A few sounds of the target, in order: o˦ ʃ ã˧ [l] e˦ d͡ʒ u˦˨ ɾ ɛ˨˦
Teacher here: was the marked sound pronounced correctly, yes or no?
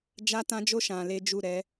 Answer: yes